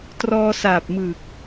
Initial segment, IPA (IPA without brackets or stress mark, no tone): t